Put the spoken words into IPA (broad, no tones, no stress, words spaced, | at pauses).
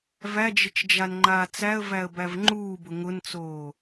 væd͡ʒɪt͡ʃ d͡ʒanŋ͡ǃaːt͡sæə̯væə̯ bævŋ͡ǃuːbʊ ŋʊnt͡soː